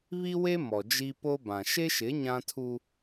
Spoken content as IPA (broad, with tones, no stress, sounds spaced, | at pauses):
β i˦ w e˦ m ɔ˨ d͡ʒ i˦ p o˦ b ã˨ ʃ e˦ ʃ ɪ˨˦ ɲ ã˦ tʰ u˦